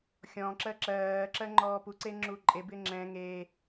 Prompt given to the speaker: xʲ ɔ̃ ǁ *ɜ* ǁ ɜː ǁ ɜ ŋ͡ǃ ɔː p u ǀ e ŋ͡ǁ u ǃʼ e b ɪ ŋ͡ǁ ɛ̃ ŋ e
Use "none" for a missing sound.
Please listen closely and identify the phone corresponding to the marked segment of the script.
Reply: ɜ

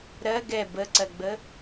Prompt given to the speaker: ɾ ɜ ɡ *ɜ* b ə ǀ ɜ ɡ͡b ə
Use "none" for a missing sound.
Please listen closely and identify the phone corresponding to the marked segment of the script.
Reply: ɛ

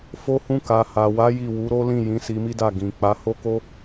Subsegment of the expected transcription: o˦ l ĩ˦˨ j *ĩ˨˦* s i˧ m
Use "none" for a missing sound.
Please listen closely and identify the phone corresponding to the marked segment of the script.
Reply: ĩ˨˦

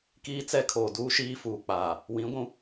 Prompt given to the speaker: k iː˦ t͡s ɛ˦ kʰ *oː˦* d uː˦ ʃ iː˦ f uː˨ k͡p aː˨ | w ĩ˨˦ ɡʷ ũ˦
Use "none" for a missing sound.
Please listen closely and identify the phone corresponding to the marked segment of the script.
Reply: oː˨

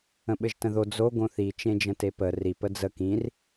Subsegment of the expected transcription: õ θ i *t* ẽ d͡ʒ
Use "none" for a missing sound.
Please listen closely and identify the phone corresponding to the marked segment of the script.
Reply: t͡ʃ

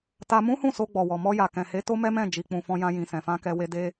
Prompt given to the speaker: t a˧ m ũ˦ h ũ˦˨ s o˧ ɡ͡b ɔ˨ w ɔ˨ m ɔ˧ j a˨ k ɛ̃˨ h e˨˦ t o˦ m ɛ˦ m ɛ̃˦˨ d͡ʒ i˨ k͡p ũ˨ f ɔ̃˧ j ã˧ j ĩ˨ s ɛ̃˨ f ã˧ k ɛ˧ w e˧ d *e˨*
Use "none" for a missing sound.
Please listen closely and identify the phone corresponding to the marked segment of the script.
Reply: e˦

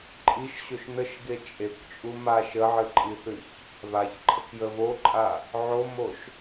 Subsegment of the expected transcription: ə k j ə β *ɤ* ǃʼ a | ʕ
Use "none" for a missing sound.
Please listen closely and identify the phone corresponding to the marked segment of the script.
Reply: o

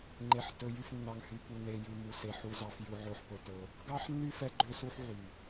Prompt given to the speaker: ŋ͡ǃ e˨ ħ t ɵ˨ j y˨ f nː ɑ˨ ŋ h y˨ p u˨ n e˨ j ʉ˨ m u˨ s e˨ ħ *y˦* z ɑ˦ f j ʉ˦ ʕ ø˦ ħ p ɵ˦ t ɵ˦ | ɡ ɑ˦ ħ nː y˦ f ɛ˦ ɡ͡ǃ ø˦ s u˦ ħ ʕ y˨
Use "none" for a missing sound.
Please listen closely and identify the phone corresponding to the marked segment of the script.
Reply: u˦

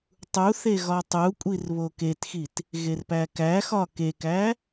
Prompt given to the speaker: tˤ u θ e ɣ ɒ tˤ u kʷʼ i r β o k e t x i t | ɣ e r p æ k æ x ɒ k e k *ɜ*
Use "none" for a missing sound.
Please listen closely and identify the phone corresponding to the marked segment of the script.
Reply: æ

